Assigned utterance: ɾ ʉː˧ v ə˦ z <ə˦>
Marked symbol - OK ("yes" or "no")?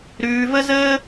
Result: no